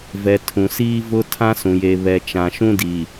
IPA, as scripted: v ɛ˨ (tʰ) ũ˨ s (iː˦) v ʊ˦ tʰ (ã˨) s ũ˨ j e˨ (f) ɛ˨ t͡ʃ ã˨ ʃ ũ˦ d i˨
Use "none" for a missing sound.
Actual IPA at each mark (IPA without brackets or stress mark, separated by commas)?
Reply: tʰ, iː˦, ã˦, β